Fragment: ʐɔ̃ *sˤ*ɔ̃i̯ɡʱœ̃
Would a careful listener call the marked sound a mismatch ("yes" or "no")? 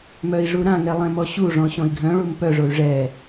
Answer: yes